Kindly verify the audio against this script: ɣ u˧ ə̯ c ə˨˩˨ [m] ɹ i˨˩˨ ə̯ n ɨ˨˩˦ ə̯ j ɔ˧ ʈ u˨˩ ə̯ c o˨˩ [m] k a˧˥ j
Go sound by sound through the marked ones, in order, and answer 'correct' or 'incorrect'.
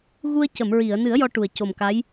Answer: correct, correct

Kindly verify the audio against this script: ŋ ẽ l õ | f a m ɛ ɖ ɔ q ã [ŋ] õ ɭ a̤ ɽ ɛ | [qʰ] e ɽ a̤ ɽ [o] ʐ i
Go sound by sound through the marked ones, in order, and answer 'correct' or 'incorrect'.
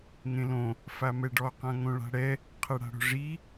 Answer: correct, correct, incorrect

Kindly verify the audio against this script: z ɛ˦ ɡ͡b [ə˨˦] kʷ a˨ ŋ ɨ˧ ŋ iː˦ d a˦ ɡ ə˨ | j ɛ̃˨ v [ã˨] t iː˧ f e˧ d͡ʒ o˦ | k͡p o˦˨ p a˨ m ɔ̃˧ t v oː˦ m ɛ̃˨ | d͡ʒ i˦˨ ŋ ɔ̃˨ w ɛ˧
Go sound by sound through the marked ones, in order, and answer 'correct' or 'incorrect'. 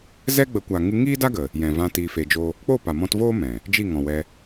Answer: correct, incorrect

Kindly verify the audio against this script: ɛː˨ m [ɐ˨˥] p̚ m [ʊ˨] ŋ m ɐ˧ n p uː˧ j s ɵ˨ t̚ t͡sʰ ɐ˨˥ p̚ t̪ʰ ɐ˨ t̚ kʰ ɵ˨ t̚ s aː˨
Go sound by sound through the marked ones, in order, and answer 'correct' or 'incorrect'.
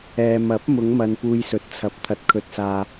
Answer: correct, incorrect

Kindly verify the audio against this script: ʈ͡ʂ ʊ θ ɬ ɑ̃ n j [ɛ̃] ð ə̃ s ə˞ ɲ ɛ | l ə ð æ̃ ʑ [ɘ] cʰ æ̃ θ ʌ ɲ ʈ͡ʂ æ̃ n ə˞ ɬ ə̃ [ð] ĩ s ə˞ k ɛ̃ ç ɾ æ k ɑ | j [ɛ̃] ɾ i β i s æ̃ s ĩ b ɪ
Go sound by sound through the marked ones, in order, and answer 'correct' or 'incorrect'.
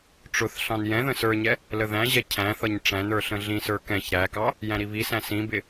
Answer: correct, incorrect, incorrect, incorrect

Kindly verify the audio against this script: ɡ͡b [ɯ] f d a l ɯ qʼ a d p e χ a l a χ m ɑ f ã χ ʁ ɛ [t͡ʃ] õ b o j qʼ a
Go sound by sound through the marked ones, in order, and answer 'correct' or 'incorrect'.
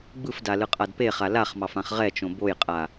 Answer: correct, correct

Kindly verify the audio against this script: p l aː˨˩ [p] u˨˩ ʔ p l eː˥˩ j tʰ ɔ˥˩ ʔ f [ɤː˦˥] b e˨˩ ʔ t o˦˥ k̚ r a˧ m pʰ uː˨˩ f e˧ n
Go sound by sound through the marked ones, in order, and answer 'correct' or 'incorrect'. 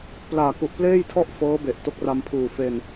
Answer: incorrect, correct

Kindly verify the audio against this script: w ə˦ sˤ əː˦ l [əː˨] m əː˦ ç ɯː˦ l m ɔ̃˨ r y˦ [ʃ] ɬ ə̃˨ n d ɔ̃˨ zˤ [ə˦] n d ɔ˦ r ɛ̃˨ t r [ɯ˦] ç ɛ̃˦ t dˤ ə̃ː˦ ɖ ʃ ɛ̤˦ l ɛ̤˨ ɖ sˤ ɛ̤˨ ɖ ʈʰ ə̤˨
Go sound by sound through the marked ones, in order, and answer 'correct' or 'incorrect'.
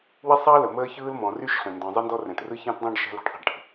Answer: incorrect, correct, incorrect, correct

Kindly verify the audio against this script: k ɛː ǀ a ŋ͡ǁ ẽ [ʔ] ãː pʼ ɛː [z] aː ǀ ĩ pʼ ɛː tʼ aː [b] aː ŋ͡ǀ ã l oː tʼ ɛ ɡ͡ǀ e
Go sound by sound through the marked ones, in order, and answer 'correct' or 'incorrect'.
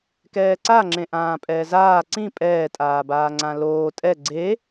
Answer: correct, correct, correct

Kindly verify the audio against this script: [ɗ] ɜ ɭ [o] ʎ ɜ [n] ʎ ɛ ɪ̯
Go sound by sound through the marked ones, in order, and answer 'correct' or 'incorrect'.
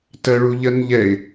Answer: incorrect, incorrect, correct

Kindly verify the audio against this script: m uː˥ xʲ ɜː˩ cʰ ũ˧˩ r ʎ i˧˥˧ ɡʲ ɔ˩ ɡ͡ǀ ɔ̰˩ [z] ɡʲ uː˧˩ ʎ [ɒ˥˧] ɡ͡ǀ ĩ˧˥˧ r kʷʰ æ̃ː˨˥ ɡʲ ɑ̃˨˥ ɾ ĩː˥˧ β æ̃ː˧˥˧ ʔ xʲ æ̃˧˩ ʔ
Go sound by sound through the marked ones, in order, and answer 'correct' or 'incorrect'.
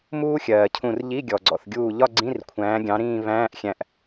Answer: incorrect, correct

